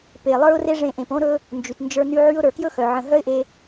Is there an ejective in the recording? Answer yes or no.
no